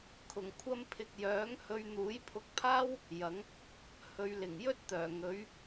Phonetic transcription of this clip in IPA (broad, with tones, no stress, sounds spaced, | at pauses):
kʰ ʊ˨˩ ŋ kʷʰ ɐ˧ m pʰ ɪ˨ k̚ j œː˨˥ ŋ h ɵ˧ ɥ n̪ uː˨˥ j pʰ ʊ˧ k̚ pʰ aː˥ w | j ɐ˨˥ ŋ | h ɵ˨˧ ɥ l ɪ˨˩ ŋ j ɵ˥ t̚ t̪ œː˨˩ ŋ ɵ˨˥ ɥ